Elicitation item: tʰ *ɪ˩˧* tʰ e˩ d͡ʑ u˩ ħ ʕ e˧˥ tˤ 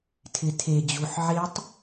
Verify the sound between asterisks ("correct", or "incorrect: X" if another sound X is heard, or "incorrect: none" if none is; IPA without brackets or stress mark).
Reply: correct